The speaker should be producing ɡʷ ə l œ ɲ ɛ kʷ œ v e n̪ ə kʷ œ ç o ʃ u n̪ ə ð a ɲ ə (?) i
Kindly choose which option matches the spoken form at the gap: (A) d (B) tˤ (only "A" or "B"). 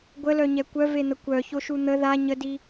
A